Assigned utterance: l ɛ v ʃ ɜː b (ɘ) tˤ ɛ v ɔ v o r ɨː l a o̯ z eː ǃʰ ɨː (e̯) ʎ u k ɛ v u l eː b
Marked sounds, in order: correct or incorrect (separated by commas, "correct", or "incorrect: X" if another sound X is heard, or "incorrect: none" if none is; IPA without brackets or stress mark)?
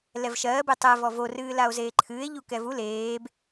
incorrect: e, correct